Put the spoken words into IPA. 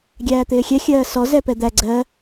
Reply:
ɡʲ æː t̪ ɪː xʲ ɛ xʲ ɜː s ɔ z ɛ p ɛ d̪ æ ɡ͡ǀ ɜ

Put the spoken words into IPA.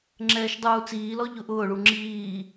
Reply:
ŋ͡ǁ ɛː ʃ dˤ uː t͡s iː l ɔ ʎ ʊ ʔ ʊː ɭ u ŋ͡ǁ iː

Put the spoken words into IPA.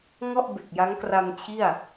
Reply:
ŋ ɔ˥˩ ʔ b e˨˩ k̚ j a˦˥ ŋ k r a˧ m t͡ɕʰ i˥˩ a̯

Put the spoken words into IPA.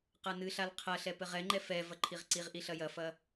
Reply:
q a n ɨ ɬ a l qʰ ɐ ɬ ɛ p ɘ ʁ ɛ ŋ͡ǃ ɛ f ɛ v ɐ ǃʰ i ʁ ǀ i ʁ ʔ i ɬ ɐ j ɐ f ɐ

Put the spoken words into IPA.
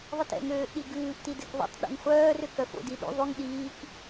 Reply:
ðˤ i t ɛ̰ ŋ øː ʔ ɗ i ɡ ʉː ʔ t i d ɛ k ðˤ ṵ tˤ ɗ ṵ ŋ χʷ œː r ø k œ f o̰ d i ɗ ṵ ðˤ y ŋ ɗ iː k

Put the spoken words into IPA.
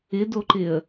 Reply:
ɪ d o ǃ ɪ ə̯

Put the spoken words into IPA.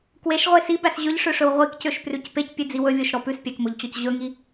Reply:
k w e ʃ ʁʷ e s i b æ s ʑ ɵ ʎ ʂ ø ʂ ɵ w ʁʷ i k c ø ʃ p r ʉ c p e c pʲ ʉ d͡z i w ɵ vʲ o ʃ ɾ ɔ p ʉ s pʲ æ k m o ʎ t͡ɕ ɔ c ʑ ɵ ŋ i

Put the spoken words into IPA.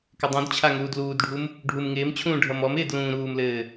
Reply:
k ɪ dˤ ũ d t͡ɕʰ a ŋ uː d l uː d ɖʱ u m | ɖʱ u m ŋ ɪː m t͡ɕʰ ũː ɖʱ ʌ m ɔ m ɪː d l ũː ɾ uː m l ɘː

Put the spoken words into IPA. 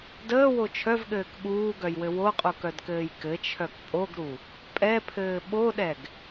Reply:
d əː w o t͡ʃʰ œ v ɠ ɘː k ɠ uː ɡ œ j w ɘ w o qʼ u k œ d k ɘː j k ɘ t͡ʃʰ œ k pʼ o ɡ ɾ u | pʼ ɛ pʰ ɘː ɓ o ɗ ɛ ɡ

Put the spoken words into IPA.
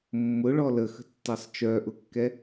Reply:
mː ʊ ɭ ɔ l ə x ə̤ tː ɐ sˤ t͡ʃ œ ʔ ʊ kː ɛ

